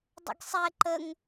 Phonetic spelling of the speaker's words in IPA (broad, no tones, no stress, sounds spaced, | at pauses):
dˤ ə̰ ɡ sˤ ɛ ǃ ə ŋ